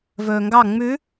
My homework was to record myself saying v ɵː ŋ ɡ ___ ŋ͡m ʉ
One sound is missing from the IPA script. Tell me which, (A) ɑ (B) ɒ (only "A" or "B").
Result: A